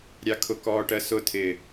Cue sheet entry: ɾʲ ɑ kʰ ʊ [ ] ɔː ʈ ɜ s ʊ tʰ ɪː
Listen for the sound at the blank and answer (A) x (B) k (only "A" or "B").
B